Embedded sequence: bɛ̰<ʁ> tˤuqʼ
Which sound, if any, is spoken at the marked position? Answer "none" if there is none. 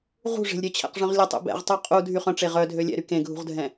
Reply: ʁ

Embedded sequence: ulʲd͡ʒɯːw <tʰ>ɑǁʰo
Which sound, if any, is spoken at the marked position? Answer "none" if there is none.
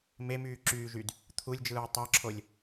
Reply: tˤ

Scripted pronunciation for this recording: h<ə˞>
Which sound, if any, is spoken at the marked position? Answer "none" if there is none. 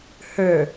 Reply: ə˞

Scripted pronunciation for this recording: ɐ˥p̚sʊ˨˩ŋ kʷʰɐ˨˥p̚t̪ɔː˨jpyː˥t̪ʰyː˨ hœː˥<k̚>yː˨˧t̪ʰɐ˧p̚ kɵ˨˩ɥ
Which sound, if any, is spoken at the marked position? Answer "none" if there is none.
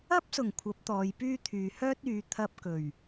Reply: t̚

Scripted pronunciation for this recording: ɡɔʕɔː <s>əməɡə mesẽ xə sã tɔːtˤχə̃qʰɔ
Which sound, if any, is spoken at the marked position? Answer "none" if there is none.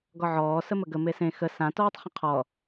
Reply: s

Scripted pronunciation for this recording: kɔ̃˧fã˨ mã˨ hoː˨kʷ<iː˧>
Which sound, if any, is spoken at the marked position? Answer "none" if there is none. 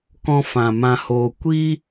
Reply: iː˦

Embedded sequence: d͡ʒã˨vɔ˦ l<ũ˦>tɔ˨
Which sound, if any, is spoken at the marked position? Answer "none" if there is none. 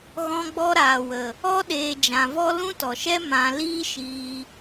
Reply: ũ˦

